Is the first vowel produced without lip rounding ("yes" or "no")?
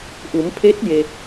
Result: no